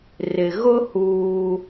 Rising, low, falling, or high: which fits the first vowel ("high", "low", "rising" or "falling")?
low